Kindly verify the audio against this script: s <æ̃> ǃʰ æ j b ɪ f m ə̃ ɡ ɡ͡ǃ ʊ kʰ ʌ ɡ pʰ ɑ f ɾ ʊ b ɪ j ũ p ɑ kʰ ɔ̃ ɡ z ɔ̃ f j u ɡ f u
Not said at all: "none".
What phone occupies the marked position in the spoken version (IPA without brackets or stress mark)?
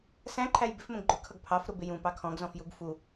æ̃